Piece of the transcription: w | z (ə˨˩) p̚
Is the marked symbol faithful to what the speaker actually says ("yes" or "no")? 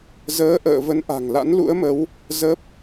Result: no